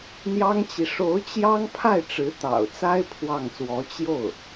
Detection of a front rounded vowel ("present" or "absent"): absent